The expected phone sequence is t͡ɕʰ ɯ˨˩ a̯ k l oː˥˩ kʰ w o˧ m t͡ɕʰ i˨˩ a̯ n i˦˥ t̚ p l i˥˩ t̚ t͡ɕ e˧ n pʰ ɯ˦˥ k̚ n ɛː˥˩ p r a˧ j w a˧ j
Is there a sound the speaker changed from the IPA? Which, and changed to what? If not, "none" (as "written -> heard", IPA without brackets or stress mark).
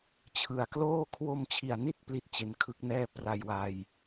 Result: pʰ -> kʰ